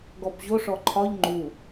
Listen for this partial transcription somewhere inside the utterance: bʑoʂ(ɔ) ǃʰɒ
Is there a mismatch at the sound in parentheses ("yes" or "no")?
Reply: no